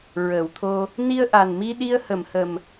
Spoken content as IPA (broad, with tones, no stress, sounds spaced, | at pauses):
ɹ əː˨˩˨ w t̪ʰ o˧ | n i˧ ə̯ ʔ a˨˩ n m i˧ ɗ i˧ ə̯ h ə˨˩˨ m h ə˨˩ m